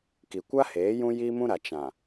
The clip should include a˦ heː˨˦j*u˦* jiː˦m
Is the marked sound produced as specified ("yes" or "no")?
no